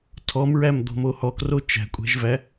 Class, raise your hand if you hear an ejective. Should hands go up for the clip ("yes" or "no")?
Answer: yes